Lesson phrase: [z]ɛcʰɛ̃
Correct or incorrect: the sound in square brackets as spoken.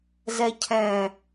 correct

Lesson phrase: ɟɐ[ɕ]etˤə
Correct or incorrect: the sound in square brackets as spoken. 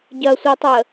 incorrect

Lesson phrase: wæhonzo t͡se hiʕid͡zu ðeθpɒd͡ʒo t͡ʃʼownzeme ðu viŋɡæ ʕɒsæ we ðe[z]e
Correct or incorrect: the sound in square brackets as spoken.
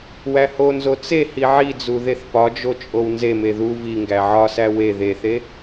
incorrect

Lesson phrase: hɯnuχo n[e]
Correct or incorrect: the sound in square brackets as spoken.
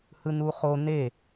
correct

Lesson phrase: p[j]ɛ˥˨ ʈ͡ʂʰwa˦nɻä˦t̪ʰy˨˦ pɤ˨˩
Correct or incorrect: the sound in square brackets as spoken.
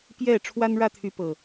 correct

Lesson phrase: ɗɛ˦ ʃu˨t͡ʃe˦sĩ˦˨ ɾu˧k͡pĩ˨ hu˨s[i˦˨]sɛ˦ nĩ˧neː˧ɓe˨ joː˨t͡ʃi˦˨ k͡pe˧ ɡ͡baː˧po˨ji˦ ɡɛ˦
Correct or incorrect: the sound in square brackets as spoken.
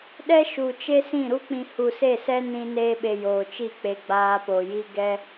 incorrect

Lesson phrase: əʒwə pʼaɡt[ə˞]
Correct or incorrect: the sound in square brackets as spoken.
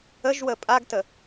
incorrect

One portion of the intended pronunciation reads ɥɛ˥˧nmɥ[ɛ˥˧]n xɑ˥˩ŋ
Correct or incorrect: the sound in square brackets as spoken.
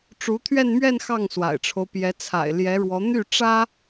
correct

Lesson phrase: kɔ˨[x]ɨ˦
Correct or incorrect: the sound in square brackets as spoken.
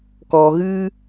incorrect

